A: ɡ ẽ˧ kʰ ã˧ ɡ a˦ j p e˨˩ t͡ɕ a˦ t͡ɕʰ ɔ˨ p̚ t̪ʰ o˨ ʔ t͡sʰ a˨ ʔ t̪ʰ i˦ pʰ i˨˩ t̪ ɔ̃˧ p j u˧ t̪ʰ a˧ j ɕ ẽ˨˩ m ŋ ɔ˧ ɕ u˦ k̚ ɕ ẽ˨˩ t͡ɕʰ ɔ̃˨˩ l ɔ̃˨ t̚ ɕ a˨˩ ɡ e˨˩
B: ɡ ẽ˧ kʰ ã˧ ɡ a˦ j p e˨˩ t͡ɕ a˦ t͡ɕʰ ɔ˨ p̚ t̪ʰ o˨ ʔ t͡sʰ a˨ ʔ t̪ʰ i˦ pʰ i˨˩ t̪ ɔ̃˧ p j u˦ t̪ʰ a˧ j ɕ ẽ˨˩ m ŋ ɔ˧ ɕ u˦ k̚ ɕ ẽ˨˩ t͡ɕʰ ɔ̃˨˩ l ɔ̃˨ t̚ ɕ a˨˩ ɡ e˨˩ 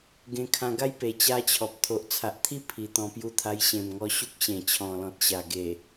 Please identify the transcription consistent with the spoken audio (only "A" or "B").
A